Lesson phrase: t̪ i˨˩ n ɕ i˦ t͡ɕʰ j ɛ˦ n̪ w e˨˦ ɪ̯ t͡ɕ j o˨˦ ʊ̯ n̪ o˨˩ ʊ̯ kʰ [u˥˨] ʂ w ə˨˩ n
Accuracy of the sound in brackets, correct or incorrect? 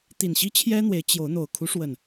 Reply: incorrect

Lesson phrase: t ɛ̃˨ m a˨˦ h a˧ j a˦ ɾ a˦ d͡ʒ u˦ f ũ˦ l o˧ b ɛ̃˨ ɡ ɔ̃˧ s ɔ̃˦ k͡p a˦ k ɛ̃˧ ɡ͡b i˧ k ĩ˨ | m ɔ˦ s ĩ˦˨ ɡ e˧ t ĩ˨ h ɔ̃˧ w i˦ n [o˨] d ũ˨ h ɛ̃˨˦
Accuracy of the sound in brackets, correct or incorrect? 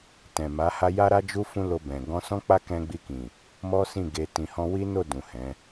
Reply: incorrect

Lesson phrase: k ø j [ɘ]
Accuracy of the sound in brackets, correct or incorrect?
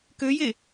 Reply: incorrect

